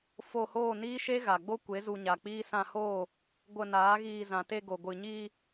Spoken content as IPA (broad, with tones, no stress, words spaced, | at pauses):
fo˧hoː˦˨niː˦ ʃe˦ɣa˨ɡ͡bo˦kʷe˨˦ zu˧ɲa˨k͡piː˦ sã˧hoː˦˨ | ɡʷə˧naː˨˦ɣiː˧ zã˨te˧ɡo˨ ɡʷɨ˨ɲiː˧